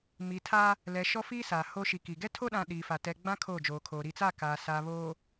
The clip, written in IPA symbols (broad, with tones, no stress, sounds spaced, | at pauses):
m i˨ tʰ a˦ | l ɛ˨ ʃ ɔ˦ f iː˦ s aː˨ h o˦ ʃ i˨ k i˨ ɡ ɛ˦ tʰ o˦ ɗ ã˨ ɗ iː˨ f a˨ t ɛ˨ ɡ͡b ã˦ kʰ oː˦˨ d͡ʒ oː˨ kʰ oː˨ ɾ i˨ t͡s a˦˨ k aː˨ s aː˨ β oː˨